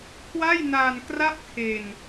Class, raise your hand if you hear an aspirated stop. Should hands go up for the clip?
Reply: yes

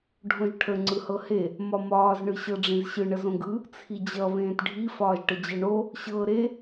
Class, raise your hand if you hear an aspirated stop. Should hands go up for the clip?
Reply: yes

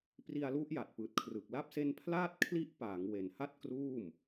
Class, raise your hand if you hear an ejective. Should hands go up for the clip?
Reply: no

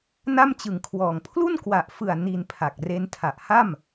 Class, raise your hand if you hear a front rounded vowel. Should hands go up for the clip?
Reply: no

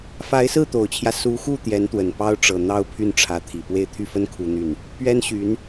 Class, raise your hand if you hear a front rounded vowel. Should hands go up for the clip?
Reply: yes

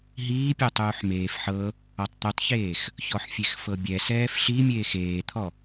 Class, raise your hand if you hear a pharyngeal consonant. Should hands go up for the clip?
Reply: yes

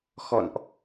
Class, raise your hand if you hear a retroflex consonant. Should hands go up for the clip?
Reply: no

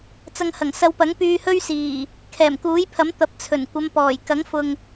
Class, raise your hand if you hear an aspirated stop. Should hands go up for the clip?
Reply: yes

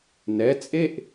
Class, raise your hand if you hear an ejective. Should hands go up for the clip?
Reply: yes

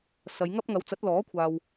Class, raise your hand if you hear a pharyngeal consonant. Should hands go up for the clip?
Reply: no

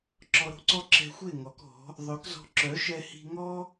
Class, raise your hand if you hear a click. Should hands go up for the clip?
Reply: yes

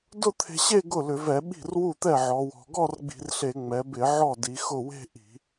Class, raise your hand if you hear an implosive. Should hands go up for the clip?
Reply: yes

